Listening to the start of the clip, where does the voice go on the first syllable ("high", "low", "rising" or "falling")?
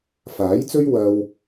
rising